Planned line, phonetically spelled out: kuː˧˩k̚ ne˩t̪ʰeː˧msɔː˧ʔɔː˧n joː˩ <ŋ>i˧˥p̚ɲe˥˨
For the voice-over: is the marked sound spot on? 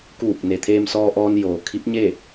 no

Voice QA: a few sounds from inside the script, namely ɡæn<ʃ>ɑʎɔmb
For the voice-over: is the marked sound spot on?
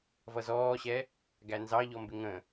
no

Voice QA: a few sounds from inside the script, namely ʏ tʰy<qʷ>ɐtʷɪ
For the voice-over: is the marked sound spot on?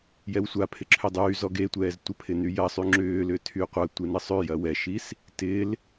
yes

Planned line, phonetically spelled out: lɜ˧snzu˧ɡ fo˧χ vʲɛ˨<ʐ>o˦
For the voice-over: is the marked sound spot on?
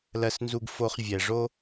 yes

